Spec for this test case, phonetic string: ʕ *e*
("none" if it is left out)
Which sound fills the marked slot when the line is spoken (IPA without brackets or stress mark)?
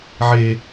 e